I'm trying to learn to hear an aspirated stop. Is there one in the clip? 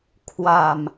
yes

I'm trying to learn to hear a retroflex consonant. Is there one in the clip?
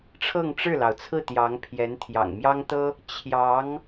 yes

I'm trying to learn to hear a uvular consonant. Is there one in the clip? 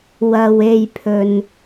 no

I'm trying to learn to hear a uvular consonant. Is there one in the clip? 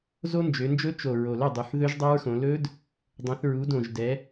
no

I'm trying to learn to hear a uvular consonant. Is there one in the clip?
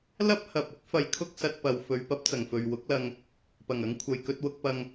no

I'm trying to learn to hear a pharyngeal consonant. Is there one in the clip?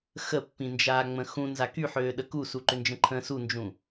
yes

